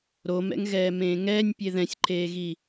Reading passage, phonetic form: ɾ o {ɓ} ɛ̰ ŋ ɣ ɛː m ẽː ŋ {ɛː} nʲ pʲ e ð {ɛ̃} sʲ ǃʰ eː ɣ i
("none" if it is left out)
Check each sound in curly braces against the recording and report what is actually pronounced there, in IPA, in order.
m, ɛː, ɛ̃

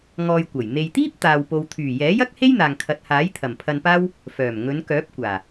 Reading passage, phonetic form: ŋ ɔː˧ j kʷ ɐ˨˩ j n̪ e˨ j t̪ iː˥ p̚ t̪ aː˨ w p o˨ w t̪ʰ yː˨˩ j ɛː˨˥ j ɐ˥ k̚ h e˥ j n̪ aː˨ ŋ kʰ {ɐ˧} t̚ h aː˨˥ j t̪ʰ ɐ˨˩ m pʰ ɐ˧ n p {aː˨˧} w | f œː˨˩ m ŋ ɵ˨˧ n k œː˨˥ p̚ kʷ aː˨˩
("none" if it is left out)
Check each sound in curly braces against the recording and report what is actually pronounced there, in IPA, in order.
ɐ˨, aː˥

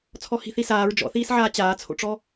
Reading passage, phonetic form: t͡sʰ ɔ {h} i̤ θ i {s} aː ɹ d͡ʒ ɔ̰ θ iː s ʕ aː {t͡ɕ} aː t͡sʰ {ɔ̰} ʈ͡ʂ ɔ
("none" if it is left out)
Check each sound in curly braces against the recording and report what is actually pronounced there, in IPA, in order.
h, s, t͡ɕ, o̰

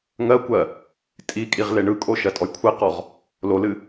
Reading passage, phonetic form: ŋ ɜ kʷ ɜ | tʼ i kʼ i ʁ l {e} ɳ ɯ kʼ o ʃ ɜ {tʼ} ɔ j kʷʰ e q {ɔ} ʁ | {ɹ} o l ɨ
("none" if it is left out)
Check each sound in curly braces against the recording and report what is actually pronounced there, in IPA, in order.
e, tʼ, ɔ, l

